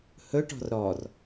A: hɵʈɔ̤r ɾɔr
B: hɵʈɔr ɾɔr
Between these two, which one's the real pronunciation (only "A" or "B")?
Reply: A